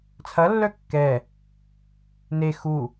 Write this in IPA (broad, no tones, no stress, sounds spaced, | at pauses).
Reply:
t͡sʰ ɐ lː œ kː ɛ | n e x u